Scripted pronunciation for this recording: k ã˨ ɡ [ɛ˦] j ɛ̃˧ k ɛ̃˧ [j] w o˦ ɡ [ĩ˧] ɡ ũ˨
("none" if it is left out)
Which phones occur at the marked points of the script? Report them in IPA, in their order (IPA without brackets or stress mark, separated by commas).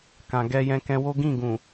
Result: ɛ˧, none, ĩ˦˨